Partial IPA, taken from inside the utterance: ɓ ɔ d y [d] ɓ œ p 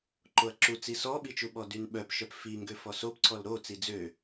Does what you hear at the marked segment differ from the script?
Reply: yes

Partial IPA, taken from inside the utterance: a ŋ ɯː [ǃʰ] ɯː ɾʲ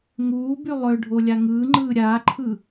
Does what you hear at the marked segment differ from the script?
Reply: yes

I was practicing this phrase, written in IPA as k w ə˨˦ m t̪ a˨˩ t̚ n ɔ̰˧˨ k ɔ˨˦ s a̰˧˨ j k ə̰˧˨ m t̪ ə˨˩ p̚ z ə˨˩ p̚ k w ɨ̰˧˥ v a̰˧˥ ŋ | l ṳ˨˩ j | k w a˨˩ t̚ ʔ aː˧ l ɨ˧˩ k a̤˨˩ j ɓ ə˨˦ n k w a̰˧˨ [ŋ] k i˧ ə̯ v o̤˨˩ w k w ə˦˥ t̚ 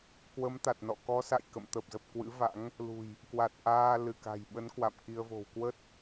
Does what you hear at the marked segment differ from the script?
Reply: yes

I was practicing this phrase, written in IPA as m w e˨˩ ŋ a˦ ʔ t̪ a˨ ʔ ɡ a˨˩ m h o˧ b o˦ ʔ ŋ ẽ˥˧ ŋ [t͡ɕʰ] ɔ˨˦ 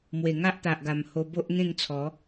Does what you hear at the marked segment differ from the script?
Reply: yes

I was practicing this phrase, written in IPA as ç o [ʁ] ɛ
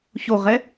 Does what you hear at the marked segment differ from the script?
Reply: no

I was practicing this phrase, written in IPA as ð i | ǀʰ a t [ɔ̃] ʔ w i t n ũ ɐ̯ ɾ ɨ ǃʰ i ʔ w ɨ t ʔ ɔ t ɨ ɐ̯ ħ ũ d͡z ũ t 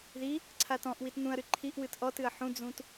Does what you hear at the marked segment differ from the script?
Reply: no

